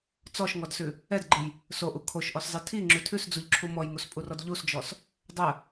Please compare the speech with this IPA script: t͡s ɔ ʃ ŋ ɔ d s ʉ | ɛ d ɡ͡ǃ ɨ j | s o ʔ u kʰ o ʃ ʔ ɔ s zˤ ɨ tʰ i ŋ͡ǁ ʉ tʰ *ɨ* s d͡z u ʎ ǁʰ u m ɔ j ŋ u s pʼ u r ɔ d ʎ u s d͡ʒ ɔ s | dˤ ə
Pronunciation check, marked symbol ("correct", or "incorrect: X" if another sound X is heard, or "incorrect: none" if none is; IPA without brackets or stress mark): incorrect: ʉ